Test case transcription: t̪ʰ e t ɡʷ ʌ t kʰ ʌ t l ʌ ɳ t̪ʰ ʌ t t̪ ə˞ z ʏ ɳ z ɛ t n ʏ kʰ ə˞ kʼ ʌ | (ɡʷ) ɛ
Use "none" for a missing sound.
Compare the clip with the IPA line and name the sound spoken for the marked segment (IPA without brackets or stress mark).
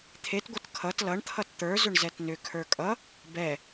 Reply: b